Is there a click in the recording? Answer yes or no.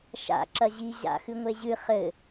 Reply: yes